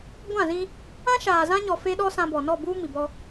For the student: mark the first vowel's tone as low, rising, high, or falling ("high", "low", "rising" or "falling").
falling